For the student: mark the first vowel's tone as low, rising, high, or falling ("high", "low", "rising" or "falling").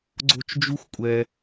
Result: high